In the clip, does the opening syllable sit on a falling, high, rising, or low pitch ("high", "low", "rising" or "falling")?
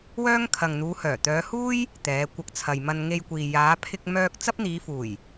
high